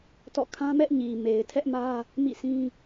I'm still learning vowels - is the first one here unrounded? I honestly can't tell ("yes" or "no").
no